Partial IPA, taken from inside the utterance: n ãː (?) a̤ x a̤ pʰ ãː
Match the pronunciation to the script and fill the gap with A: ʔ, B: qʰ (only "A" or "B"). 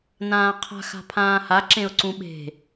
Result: B